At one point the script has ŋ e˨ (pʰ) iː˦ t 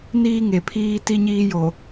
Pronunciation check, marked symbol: correct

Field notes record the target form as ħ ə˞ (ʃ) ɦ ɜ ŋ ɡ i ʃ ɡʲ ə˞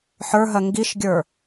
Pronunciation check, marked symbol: incorrect: none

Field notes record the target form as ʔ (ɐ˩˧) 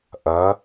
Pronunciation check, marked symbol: correct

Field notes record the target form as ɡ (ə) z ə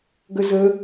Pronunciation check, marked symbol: correct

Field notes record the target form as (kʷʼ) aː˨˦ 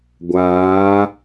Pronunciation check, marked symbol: incorrect: ɡʷ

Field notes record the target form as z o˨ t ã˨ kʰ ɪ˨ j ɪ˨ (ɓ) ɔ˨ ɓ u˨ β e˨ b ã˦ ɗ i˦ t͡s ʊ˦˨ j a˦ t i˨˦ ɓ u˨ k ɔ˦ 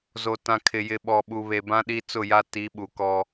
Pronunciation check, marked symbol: correct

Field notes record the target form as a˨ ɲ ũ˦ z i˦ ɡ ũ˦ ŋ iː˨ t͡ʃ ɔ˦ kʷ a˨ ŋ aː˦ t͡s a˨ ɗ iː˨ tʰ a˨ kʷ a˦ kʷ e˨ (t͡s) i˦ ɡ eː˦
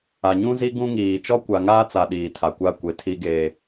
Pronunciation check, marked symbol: incorrect: tʰ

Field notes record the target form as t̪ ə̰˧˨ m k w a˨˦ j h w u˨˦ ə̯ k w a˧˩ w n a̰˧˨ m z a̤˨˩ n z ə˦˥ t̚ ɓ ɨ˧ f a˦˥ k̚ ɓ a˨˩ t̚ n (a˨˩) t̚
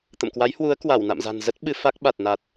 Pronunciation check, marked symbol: correct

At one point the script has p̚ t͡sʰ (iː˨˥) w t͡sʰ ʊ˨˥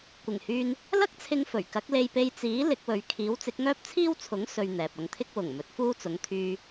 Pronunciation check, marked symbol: incorrect: iː˥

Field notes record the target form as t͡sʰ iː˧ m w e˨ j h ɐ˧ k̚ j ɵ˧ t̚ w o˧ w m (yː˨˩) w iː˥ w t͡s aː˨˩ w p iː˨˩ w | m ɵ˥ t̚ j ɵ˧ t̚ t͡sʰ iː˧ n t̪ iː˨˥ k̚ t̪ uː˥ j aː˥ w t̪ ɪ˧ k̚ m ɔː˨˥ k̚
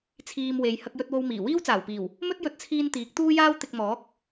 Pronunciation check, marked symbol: incorrect: iː˨˩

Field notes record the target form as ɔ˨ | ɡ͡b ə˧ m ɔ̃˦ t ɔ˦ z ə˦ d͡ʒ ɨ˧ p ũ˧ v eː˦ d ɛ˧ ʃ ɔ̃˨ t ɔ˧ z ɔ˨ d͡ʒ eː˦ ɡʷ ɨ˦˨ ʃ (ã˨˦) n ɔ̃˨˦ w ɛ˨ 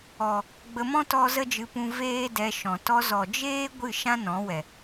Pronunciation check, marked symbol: incorrect: ã˦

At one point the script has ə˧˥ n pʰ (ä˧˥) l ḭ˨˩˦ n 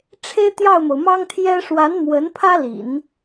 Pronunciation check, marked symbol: incorrect: ä˥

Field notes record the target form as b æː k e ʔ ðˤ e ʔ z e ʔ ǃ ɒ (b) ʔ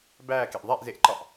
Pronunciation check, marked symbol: incorrect: none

